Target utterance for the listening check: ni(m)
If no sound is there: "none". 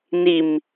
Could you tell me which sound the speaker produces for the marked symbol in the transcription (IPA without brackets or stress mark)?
m